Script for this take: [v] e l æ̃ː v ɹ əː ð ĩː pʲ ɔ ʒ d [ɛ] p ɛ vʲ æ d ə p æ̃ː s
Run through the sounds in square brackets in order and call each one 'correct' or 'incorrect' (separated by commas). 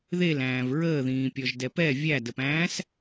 incorrect, correct